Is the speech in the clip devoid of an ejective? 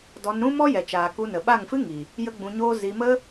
yes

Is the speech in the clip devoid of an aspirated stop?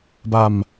yes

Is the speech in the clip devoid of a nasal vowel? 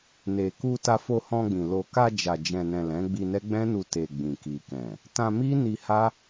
no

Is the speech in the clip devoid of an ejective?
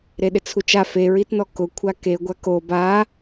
yes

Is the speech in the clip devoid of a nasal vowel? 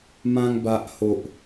no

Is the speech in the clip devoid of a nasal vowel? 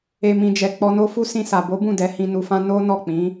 no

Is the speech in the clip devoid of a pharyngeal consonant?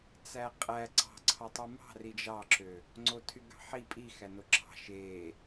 no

